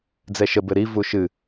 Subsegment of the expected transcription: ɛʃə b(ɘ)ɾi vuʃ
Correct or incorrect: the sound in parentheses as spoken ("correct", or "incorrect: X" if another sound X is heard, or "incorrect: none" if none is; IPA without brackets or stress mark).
correct